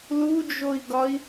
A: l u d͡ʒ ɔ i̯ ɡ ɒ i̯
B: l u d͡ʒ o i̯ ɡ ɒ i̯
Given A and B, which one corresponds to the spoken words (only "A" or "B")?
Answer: B